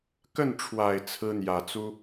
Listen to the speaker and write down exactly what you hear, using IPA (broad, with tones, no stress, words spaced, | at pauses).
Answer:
kə˥˩nʈ͡ʂʰwa˨˩ɪ̯ t͡sʰɹ̩˥n̪jä˨˩t͡su˥